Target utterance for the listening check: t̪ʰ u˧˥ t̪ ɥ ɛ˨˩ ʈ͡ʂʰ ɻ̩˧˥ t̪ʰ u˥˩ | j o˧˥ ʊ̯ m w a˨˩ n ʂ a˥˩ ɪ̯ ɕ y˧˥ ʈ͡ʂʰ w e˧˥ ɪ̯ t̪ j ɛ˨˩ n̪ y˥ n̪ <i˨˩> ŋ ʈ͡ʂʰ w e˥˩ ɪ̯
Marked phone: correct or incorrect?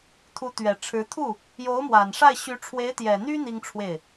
incorrect: i˥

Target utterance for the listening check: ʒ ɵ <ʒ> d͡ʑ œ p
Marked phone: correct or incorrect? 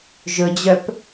incorrect: none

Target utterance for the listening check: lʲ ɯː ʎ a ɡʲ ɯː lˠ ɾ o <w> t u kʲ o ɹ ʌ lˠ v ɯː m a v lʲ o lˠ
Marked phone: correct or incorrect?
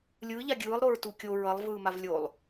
incorrect: ɹ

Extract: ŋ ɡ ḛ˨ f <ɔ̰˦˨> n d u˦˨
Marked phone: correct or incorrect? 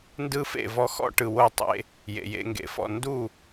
correct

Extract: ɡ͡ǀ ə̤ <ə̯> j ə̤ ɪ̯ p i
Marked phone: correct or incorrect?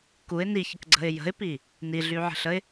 incorrect: ɪ̯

